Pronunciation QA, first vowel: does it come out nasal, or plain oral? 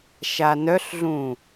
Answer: oral